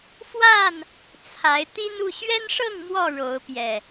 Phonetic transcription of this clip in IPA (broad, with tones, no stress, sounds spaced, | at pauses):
f w a˥˨ n | t͡sʰ a˨˦ ɪ̯ t̪ i˦ n u˥˨ ɕ ɥ ɛ˦ n ʂ ɤ˥˨ ŋ m w ɔ˥˨ ɻ o˨˦ ʊ̯ p j ɛ˨˩